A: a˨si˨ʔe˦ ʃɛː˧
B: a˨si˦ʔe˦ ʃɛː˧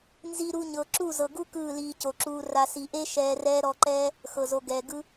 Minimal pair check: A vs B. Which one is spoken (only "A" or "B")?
A